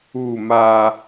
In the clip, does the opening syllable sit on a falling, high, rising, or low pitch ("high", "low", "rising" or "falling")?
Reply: falling